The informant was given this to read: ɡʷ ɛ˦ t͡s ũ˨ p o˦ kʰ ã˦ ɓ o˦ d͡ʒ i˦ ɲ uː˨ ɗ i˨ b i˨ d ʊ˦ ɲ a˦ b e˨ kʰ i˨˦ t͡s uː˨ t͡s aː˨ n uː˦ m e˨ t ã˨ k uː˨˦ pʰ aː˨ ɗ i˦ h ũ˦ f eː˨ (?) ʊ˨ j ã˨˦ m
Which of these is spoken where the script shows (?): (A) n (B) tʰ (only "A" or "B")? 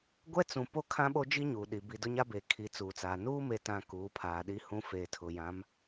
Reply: B